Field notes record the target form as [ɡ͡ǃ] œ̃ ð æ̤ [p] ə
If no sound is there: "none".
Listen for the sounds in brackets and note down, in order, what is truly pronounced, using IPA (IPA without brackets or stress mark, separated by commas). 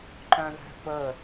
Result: ǃ, p